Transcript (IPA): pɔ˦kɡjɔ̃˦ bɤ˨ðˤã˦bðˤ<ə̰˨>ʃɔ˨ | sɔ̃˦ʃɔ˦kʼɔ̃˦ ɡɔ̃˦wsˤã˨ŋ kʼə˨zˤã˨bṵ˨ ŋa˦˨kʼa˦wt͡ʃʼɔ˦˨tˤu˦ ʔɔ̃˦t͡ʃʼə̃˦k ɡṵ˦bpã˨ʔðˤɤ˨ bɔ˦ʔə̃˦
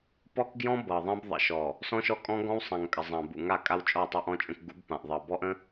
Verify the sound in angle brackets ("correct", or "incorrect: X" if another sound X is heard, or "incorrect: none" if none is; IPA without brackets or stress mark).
correct